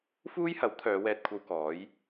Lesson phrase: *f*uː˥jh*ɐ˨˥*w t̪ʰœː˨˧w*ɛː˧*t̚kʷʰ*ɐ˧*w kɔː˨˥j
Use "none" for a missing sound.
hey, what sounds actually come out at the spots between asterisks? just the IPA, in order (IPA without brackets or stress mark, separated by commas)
f, ɐ˨˥, ɛː˧, ɐ˧